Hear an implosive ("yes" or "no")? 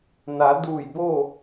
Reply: no